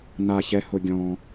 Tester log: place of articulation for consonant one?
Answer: alveolar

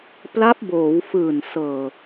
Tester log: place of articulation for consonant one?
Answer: labial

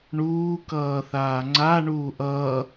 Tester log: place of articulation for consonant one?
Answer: retroflex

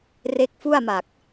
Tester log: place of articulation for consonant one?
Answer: alveolar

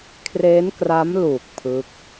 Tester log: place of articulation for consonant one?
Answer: velar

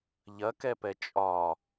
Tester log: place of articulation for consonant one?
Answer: palatal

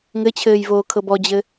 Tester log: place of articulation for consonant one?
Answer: velar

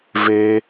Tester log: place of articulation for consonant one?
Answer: labial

